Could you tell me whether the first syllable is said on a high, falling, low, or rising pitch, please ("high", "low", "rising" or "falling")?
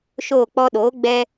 falling